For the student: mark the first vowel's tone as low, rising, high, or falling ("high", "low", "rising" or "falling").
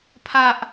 high